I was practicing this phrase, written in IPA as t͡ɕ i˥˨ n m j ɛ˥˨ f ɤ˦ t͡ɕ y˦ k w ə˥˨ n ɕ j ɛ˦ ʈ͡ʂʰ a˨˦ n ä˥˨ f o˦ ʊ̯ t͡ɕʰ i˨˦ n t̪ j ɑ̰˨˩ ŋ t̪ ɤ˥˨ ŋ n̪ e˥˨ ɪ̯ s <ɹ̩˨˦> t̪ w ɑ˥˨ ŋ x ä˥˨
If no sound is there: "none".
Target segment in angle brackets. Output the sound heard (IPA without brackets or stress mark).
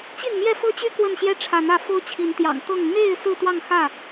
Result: ɹ̩˥˨